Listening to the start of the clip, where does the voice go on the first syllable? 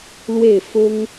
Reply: falling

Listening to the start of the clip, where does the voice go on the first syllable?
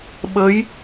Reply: rising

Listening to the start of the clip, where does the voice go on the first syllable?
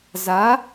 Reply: rising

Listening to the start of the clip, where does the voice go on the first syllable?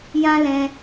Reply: high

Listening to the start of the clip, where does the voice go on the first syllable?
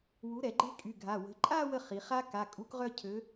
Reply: rising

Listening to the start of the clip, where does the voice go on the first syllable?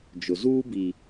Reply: low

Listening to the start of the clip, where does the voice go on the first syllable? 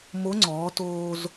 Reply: rising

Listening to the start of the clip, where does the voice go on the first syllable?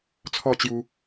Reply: falling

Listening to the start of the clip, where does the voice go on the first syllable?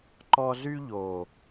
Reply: high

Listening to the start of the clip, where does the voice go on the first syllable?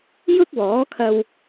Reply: high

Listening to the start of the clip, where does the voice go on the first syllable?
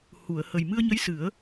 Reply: low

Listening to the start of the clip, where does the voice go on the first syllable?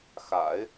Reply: low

